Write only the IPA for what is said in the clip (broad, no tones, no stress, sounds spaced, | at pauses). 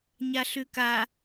ɲ a ɬ ʉ k a